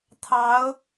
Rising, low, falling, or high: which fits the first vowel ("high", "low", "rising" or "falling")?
rising